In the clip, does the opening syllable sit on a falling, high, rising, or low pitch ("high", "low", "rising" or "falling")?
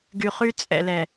low